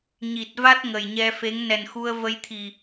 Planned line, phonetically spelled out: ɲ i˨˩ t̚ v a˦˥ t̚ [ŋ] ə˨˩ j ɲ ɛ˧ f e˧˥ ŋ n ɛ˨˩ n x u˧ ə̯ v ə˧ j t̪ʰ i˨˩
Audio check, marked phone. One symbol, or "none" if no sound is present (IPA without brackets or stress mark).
ŋ